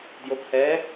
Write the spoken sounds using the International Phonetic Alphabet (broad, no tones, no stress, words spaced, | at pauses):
djophɛ